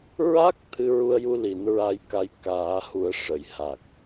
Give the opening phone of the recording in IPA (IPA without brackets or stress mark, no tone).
ɹ